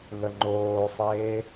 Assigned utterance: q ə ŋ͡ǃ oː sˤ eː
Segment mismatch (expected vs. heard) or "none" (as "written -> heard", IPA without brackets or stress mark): q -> ŋ